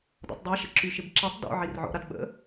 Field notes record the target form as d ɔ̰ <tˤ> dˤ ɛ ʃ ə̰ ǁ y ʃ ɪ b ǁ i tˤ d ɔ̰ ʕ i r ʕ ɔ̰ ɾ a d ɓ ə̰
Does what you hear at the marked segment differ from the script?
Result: no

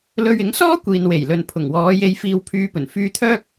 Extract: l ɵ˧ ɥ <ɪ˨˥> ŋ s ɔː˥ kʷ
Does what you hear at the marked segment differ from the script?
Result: no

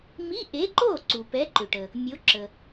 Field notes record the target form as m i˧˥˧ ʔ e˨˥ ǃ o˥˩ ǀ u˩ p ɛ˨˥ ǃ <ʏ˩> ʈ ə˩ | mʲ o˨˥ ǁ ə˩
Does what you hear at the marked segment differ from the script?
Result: no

